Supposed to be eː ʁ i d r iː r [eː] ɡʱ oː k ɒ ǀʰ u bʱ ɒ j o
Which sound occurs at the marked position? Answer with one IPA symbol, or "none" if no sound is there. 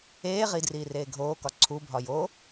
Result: eː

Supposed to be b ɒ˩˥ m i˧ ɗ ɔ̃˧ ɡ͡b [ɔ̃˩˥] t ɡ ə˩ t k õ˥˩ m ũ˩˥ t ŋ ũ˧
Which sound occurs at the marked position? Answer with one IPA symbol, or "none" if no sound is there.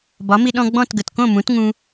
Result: ɔ̃˥˩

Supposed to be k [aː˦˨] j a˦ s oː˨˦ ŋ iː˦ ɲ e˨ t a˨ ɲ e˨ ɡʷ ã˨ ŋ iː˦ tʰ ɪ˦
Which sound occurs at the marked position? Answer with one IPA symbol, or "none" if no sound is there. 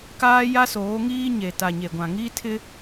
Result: aː˦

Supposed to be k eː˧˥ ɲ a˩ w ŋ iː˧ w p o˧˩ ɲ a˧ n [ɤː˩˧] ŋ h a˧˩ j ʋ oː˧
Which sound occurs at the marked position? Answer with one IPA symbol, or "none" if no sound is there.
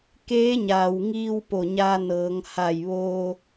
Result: ɤː˩˧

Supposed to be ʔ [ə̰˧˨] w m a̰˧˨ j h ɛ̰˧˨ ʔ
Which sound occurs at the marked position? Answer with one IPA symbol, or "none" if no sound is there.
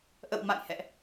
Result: ə̰˧˨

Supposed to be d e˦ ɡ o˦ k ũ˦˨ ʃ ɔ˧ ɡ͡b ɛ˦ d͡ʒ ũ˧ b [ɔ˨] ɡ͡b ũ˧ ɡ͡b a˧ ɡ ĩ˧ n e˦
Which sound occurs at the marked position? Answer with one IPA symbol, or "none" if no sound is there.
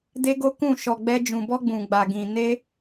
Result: ɔ˦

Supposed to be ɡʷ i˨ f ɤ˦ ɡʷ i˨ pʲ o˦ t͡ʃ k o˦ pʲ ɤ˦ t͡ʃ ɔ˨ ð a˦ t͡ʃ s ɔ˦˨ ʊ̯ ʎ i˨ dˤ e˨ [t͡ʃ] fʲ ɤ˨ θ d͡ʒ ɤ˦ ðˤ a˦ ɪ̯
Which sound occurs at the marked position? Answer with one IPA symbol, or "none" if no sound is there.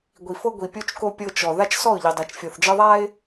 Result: t͡ʃ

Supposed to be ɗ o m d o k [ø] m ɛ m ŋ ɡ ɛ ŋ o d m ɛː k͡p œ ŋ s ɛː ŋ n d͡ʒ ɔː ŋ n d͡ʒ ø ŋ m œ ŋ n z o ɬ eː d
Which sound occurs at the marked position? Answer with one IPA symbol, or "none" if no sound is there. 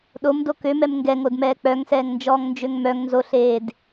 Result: ø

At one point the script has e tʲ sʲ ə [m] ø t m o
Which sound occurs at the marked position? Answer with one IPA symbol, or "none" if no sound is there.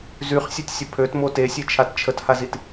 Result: pʰ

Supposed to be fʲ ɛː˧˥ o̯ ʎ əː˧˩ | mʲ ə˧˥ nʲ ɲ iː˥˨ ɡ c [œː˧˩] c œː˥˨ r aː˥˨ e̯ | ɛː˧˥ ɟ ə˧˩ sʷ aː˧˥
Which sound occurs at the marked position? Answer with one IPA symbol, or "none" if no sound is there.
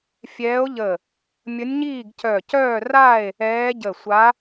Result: œ˧˩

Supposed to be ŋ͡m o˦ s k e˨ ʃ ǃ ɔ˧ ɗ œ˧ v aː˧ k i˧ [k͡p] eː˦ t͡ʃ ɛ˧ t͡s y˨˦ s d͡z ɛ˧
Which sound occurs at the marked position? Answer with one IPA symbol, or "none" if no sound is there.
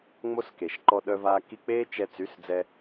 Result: k͡p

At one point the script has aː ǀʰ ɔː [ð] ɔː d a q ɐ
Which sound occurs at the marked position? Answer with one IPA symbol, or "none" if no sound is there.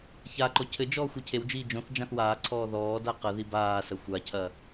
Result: ð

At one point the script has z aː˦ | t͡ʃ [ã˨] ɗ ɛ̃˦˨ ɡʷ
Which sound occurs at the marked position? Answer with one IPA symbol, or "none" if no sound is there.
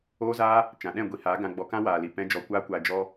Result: ã˨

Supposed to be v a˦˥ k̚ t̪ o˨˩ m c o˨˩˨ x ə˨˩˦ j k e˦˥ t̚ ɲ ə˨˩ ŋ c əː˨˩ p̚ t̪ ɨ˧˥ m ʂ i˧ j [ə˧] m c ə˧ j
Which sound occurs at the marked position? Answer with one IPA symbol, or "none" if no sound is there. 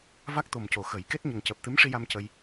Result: a˧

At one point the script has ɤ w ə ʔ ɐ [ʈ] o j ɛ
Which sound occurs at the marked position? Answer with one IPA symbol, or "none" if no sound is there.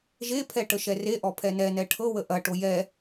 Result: ʈ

